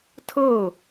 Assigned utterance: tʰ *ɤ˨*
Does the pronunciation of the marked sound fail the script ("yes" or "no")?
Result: yes